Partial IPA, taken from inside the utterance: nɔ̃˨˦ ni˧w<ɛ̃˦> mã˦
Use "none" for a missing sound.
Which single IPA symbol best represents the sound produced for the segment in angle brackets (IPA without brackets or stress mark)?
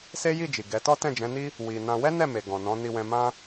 ɛ̃˧